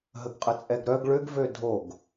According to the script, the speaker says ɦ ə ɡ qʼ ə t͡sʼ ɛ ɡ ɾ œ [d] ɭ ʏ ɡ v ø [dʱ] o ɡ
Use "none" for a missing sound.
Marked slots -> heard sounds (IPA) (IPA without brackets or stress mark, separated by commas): ɡ, dʱ